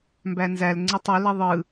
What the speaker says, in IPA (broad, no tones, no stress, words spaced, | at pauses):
mbænzæl ŋ͡ǀɯtˤo liðˤɯ